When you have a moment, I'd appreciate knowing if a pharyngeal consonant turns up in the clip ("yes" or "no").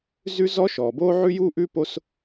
yes